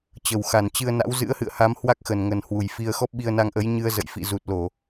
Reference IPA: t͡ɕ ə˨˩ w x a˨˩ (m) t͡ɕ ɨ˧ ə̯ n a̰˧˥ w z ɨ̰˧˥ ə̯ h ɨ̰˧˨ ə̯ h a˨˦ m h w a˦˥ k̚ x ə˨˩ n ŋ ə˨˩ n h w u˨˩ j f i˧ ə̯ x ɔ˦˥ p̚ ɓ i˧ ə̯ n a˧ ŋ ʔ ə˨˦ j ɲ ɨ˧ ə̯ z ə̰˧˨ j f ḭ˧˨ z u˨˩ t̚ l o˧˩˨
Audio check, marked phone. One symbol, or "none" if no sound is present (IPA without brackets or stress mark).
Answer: n